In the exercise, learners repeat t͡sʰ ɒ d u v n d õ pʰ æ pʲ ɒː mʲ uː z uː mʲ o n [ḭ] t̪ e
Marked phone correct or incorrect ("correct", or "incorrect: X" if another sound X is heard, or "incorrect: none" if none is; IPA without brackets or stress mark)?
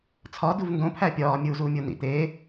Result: correct